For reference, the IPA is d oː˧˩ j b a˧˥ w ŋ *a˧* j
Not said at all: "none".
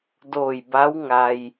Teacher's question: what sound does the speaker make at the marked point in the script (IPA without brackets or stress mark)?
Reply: a˧